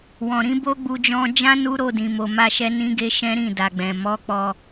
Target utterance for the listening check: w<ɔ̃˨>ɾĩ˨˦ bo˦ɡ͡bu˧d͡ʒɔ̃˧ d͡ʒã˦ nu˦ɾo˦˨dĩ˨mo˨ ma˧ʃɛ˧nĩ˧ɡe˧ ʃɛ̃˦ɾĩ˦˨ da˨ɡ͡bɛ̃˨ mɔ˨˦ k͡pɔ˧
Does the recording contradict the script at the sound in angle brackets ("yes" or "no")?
no